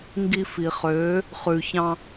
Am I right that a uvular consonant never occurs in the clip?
no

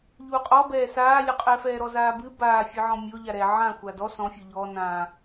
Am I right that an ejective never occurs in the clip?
no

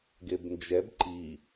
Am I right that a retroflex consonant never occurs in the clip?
yes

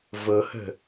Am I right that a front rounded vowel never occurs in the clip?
yes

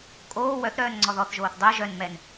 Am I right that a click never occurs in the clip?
no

